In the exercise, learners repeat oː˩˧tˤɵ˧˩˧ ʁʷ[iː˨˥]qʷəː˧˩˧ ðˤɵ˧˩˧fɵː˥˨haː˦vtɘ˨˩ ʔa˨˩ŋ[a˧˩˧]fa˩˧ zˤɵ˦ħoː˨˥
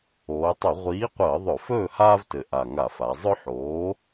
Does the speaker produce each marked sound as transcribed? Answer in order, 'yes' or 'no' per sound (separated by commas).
yes, yes